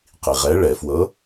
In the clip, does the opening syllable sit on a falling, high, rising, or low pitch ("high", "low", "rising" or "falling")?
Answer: low